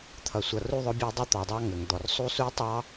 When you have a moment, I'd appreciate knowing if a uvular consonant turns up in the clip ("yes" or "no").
no